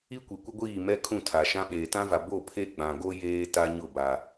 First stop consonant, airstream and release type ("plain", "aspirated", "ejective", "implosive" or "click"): plain